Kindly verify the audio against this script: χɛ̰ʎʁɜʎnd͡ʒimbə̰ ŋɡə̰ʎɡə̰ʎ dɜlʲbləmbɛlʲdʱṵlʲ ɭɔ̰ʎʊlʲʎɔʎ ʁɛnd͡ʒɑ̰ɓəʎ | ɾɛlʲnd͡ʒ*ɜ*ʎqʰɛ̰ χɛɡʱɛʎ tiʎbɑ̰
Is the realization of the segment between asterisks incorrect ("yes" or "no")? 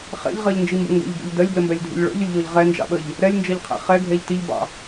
no